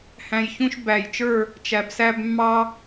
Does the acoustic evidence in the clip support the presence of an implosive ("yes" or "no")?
no